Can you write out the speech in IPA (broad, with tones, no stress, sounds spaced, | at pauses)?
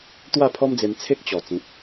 t̪ w a˥˧ pʰ ɔ˦ m d͡z e˧ m t͡sʰ e˦ k̚ t͡ɕ ɔ˨˩ t͡s ĩ˨ t̚